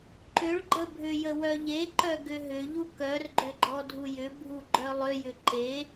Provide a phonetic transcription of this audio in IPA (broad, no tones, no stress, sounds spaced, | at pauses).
ǃ ʏ ɭ ɡ͡ǃ ə bʱ ʏ j ə w œ ʎ e ǃ œ ɡ ʏ ɦ ʏ ʎ u k œ r ɡ͡ǃ ʏ ɡ͡ǃ ɔ dʱ u j ʏ bʱ u ɡ͡ǃ œ lˠ ʏ j ʏ ǃ e